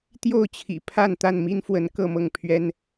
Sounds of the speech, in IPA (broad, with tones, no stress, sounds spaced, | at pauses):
t̪ j o˥˨ ʊ̯ t͡ɕʰ ḭ˨˩ pʰ a˥˨ n t̪ a˥˨ n m i˦ n f w ə˨˦ n k ɤ˥˨ m ɤ˥˨ ŋ pʰ ɥ ɛ˦ n